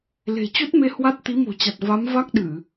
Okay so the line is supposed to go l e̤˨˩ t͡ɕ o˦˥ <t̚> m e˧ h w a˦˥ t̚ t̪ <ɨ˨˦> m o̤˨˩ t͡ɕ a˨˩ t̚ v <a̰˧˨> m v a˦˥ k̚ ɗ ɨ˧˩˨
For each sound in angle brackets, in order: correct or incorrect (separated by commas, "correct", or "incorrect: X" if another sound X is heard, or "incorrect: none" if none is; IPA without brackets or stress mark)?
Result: correct, incorrect: i˨˦, incorrect: a˨˦